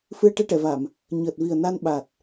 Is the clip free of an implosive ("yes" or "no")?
no